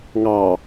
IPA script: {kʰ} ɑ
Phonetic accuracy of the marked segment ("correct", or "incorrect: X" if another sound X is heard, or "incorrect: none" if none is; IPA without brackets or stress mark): incorrect: ŋ